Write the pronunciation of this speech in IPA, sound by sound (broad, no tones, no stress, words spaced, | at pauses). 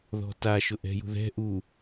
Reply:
ðɔ̤taʃʊ ʔɛ̤jṳðɛ̤ ʔu